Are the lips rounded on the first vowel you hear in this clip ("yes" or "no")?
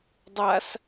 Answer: no